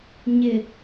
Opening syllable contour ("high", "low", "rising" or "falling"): low